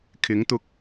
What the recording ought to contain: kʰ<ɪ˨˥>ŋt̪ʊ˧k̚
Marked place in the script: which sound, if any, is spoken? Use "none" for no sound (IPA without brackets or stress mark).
ɪ˨˥